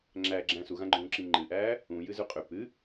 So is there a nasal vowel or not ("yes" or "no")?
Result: yes